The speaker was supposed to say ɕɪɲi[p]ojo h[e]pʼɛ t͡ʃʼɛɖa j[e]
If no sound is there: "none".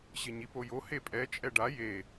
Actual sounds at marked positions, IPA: p, e, e

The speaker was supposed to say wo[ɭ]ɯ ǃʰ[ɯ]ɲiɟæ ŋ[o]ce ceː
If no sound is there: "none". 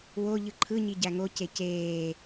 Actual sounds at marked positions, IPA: ʎ, ɯ, o

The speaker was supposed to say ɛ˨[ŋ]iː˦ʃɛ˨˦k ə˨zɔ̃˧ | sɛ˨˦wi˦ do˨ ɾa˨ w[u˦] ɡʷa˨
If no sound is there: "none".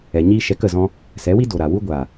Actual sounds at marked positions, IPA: ɲ, u˦

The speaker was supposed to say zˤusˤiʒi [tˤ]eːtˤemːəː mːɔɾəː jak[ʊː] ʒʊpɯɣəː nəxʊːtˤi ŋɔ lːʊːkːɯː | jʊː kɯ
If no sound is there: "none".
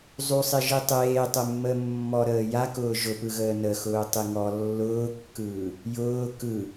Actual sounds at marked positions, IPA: tˤ, ʊː

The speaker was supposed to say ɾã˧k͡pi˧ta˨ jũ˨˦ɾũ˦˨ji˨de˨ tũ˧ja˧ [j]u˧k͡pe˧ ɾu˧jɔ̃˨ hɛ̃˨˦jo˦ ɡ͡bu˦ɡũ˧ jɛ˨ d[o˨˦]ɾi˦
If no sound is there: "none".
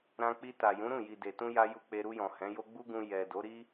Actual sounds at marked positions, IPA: j, o˨˦

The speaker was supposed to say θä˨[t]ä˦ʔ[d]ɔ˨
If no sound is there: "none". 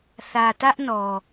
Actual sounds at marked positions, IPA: t, n

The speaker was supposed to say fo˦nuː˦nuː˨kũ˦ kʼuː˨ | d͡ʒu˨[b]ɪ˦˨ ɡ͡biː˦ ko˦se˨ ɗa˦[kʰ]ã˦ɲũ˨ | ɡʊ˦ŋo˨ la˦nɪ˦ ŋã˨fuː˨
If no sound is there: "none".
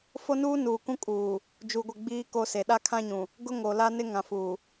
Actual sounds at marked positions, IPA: ɡʷ, kʰ

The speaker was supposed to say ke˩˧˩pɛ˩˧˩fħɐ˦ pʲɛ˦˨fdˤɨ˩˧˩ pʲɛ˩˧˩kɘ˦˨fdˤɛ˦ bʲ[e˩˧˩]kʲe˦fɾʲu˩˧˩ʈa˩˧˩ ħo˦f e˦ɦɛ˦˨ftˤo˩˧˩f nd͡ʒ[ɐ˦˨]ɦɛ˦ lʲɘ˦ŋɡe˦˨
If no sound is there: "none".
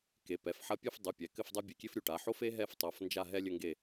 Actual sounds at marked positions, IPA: e˩˧˩, a˦˨

